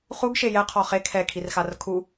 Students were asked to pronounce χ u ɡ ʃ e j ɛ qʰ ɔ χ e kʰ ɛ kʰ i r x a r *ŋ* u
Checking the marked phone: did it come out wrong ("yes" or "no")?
yes